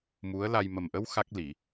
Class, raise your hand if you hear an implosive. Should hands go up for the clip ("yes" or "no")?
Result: no